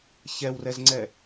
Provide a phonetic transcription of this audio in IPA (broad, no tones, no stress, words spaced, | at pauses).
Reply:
çɛwrɛzŋ͡ǀɛ